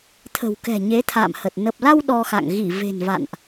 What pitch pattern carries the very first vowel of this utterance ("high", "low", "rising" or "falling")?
low